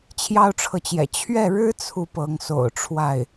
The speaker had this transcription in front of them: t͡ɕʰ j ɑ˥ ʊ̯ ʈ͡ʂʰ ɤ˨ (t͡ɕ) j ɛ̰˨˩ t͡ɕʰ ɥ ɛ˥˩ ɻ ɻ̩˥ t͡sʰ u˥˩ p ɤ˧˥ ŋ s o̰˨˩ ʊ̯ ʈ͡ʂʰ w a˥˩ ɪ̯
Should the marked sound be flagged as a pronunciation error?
no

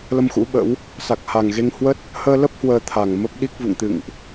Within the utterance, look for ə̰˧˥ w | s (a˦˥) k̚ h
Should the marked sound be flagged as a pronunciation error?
yes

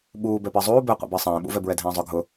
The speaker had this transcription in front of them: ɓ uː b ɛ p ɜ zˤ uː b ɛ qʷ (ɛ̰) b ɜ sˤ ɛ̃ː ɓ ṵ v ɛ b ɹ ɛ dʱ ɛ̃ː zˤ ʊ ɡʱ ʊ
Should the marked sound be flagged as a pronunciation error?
no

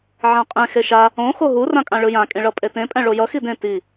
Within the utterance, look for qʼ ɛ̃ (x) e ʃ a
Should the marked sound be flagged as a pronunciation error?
no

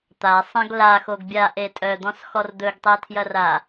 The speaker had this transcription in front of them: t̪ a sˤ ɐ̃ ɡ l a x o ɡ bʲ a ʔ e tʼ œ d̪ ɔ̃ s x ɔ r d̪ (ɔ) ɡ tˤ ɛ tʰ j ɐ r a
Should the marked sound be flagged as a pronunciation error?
yes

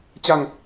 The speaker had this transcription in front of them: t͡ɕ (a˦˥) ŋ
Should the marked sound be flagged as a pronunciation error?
yes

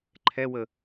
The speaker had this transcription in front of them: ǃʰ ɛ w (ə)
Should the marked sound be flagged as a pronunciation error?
no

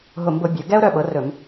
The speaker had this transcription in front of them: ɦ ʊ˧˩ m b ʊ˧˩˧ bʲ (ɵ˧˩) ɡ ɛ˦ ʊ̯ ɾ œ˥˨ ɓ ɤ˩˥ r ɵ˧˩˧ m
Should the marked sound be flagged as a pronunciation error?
yes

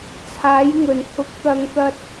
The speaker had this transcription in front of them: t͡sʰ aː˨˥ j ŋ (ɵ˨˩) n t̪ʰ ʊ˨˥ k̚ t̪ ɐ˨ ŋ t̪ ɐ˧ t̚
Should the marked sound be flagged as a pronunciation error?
no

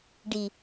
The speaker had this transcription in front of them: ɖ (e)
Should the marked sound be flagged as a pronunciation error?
yes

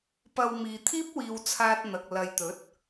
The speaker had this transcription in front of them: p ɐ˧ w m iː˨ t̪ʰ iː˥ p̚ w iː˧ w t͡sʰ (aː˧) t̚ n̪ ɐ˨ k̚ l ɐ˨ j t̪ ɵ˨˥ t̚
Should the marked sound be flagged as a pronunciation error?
no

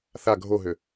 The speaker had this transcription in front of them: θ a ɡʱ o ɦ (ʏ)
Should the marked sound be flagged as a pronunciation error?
no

